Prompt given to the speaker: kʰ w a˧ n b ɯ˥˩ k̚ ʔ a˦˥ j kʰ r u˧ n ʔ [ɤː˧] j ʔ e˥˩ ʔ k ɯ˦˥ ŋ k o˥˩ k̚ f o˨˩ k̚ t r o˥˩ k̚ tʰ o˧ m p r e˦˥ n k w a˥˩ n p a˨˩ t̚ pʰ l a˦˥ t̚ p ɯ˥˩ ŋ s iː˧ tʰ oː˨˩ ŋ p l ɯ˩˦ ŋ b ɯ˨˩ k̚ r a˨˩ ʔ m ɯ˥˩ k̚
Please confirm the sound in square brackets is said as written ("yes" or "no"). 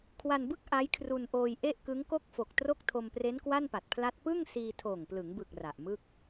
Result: no